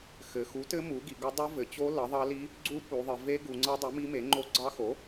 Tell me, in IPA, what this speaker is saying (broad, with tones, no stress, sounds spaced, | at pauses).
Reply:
x ɘ˩˧ x u˩˥ t ɘ˧˥ m u˩˥ ɡ i˩˧ ɡ ʌ˧˥ dˤ o˧˥ v ɘ˩˧ t͡ɕ o˧˥ l ʌ˩˥ ðˤ ɑ˧˥ l i˧˥ | ɡ͡ǀ u˧˥ p u˩˧ ðˤ ɘ˩˧ v e˧˥ ɡ u˩˧ ŋ͡ǀ ʌ˧˥ dˤ u˩˥ m i˧˥ m e˩˥ ŋ͡ǃ o˧˥ ɡ͡ǀ ɑ˧˥ x o˩˥